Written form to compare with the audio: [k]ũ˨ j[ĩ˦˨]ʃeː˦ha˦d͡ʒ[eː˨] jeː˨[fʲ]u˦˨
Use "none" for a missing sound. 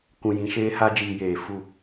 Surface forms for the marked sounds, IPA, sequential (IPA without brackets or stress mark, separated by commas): k, ĩ˨, iː˨, f